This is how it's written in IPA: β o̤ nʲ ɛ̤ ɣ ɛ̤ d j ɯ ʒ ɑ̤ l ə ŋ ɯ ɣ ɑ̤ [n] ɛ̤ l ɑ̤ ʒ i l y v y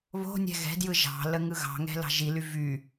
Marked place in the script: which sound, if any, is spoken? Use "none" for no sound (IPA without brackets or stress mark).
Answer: ŋ